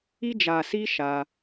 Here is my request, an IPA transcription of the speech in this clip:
i˧ d͡ʒ a˨ s i˧ ʃ a˧

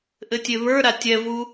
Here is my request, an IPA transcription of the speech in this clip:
ʔ ɘ tʲ e β ə˞ ɾ a tʲ ɛ v u

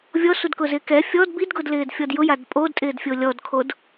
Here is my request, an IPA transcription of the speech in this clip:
vʲ ɔ s u d k ʊ z ɪː k ɛ fʲ ɔ d b i d ɡ ʊ d l ɪː d fʲ ɔ d j ʊ j a d pʼ o d tʼ ɪː d fʲ o lʲ ɔ d kʰ o d

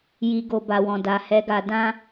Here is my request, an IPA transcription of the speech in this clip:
j i˧ ɡ o˧ b a˨ w ɔ̃˨ d a˨ h ɛ˨˦ ɡ a˧ d ã˦

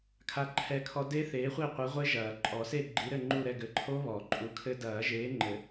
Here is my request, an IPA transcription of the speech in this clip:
kʰ a˦˥ ǃʰ ɛ˦˨ kʰ ɔ˦˥ d e˦˥ θ eː˨˦ χʷ i˦˨ qʷ ɨ˨˦ ʁʷ e˦˥ ʒ ɐː˨˩˦ ǃʼ ɔ˨˩˦ s e˦˨ ɡ͡ǃ i˨˦ ɾ ɘ˦˨ ŋ͡ǃ u˦˨ ɾ ɛ˦˨ ɡ ɘ˨˦ ǃʰ o˦˥ β ɔ˨˩˦ ǃʼ u˨˦ kʰ ɘ˦˥ d ɐː˨˩˦ ʒ eː˨˦ ŋ͡ǃ ɘ˨˩˦

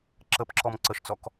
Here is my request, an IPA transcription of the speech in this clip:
ǁ ə p ǁ ɔ m ǀ ə ʃ t͡s ɔ k

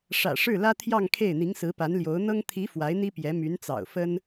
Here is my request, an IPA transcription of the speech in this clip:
ʂ ä̰˨˩ ʂ ɻ̩˥˩ l ä˥ t̪ʰ j ɑ˥˧ ŋ kʰ e˥˩ ɪ̯ n̪ i˧˥ ŋ s ɹ̩˧˥ p a˧˥ n l j o˧˥ ʊ̯ n̪ ɤ˥ ŋ t̪ʰ i˧˥ f w a˧˥ ɪ̯ n̪ i˥ p j ɛ˧˥ m y˧˥ n t͡s ɑ̰˨˩ ʊ̯ f ə˥ n

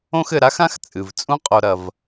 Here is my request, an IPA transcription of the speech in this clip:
õ˦ x ɘ˨ ɾ a˥ x ã˥ x t͡sʼ ɨ˩ v t͡sʼ ũ˥ qʼ o˨ ɾ ɐ˩ v

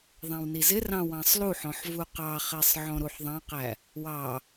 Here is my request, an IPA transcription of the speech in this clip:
ðˤ æ̃ w n i z ɪ r ɑ̃ w ɑ̃ sˤ l u ħ ɔ̃ ħ v u q ɑ χ ɛ sˤ ʕ ɔ̃ ɾ u ħ ðˤ ɑ̃ q æ | w ɑ

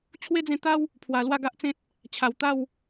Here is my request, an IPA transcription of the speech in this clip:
t͡ɕʰ w e˦ d͡z ẽ˧ t̪ a˦ w | pʰ w a˨˩ l w a˥˧ ɡ a˦ ʔ t͡s ẽ˦ t̚ | t͡ɕʰ a˨˩ w t̪ a˥˧ w

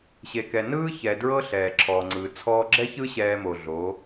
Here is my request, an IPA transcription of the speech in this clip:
ɕ e˨ k ɛ˨ n ɯː˦ ç ɛ˨ d ɹ ɤ˦ ɬ ɛː˨ ǁʰ ɔː˨ ŋ͡ǀ ɯː˨ t͡sʰ ɔː˧ ɡ͡ǁ ɛ˦ ç ɯ˦ ɕ ɛː˧ m o˨ ɮ o˨˦

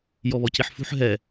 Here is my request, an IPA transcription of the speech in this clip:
j ɔ β ɔ c i ħ f ṳ ħ ɦ ɛ

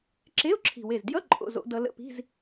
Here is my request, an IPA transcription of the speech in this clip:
ǁ e˧˥˧ ʊ̯ ǁʰ i̤˨˩ w e˨˩ z d j ʌ˧˥˧ ǃʼ o̰˥˧ z o̰˦˥ d ʌ˦˥ l ə̰˧˥˧ p i̤˧˥˧ z

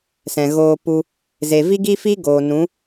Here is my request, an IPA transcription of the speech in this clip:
s ɛ̃˨ ɣ oː˧ p u˧ | z e˨ v i˦ ɡ i˦ f i˦ ɡ oː˨ n ũ˨˦

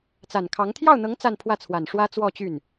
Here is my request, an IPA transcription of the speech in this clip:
t͡s a˨˩ n kʰ ɑ˧˥ ŋ t̪ʰ j ɑ˥˩ ʊ̯ n̪ ɤ˧˥ ŋ t͡s a˥˧ n pʰ w ä˥˩ t͡sʰ w a˨˩ n ʂ w ä˥ t͡s w ɔ˥˧ t͡ɕ y˥˩ n

